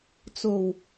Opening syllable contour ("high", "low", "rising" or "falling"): low